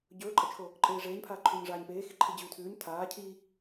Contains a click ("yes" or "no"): yes